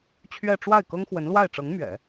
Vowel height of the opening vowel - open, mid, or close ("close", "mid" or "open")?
mid